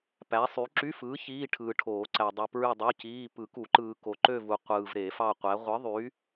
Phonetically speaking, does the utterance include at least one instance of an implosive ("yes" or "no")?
no